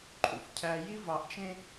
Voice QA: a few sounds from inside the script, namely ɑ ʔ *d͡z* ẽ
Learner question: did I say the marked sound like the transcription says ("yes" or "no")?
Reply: no